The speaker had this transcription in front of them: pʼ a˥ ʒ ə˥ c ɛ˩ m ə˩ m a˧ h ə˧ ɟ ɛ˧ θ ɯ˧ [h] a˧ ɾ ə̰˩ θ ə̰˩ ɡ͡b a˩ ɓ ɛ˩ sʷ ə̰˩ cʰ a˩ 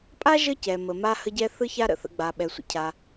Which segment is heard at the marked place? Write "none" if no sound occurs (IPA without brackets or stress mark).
ç